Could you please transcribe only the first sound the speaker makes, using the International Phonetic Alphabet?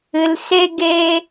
ɨ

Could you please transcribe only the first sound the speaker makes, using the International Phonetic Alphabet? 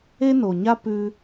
e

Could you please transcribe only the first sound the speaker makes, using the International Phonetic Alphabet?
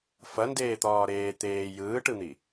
f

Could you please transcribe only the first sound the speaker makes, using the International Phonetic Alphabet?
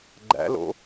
ɡ͡ǃ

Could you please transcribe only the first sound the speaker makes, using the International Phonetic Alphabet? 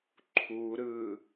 ǃʰ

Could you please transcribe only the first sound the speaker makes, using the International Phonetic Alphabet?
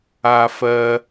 a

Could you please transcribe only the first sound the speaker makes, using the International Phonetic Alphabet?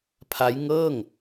pʰ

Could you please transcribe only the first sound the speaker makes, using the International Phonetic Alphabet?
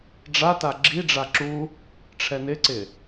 ɖ͡ʐ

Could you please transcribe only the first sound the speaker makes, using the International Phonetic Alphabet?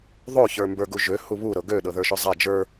ðˤ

